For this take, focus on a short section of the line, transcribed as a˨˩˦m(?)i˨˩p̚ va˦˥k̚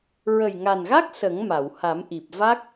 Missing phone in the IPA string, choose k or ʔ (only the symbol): ʔ